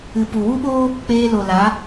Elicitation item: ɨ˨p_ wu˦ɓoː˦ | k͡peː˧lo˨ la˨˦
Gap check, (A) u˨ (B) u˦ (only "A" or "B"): A